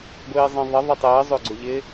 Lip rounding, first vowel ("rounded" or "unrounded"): unrounded